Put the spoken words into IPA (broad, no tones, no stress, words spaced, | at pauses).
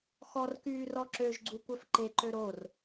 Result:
xɔrkyː rɔǁøʒɡ͡ǀu kʷœfǃeǃø ɾor